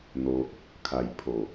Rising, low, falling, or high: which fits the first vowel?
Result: low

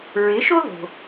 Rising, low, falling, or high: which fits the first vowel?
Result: rising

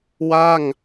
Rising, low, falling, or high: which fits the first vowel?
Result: falling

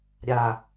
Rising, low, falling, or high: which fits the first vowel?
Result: low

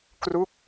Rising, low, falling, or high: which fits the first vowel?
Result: falling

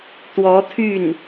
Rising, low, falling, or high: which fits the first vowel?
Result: rising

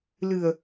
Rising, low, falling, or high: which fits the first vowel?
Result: low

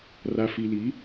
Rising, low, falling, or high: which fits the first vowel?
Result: low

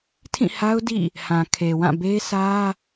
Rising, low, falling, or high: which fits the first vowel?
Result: falling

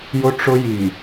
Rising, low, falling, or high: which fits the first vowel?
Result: high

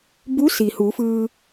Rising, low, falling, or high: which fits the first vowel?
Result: rising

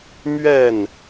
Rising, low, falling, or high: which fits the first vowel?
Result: falling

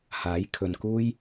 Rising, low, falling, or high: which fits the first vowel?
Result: rising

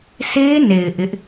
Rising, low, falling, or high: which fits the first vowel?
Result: high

